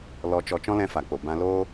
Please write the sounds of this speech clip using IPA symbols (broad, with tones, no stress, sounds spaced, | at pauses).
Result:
l ɔ˧ t͡ʃ ɔ˧ t͡ʃ ɔ̃˦ l ɛ̃˧ f a˨ k͡p o˨ b ã˧ l oː˦